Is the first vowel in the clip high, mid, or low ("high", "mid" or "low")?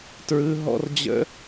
high